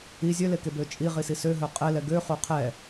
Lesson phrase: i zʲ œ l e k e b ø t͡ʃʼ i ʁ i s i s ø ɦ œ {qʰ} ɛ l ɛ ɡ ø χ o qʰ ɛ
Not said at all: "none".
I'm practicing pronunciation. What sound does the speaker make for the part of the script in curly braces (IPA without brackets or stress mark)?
qʼ